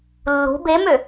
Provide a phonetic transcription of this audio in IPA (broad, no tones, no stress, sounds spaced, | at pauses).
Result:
lː ṳ b e m ø